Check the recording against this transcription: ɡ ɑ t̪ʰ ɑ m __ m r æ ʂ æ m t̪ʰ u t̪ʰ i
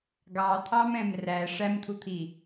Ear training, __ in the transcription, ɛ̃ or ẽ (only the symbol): ɛ̃